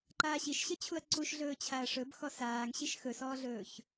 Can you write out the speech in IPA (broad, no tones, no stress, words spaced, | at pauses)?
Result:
ǃaːɕiʃɕət͡ɕʰuɐ̯ ǀuʃɮɵː t͡ɕʰaɐ̯ʂɵb xɔsaːŋɕiʃ xɵsɔːɮɵːç